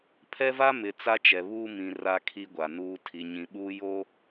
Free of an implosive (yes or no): no